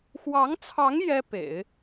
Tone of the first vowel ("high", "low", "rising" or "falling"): rising